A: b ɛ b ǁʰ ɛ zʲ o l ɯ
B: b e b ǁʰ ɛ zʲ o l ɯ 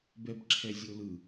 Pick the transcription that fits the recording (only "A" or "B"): A